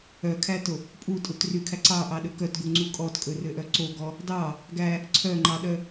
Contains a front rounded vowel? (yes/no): yes